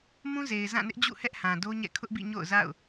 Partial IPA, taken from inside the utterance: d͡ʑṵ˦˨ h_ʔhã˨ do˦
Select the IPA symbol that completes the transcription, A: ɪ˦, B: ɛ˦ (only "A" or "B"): B